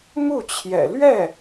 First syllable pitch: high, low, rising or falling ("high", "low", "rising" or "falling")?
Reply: falling